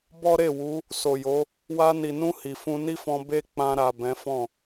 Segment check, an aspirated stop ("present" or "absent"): absent